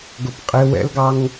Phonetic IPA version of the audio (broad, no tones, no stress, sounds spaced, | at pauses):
ɡ ʊ p qʼ ɪ w ɛ̰ l ɡ ɑ ŋ